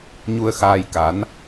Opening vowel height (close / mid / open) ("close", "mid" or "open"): close